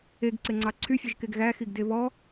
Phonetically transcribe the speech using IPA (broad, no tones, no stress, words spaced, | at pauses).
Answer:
eɡǀeŋ͡ǀɑ ǀʰyfʲɵʒkeɡ ɣæxiɡde βɔ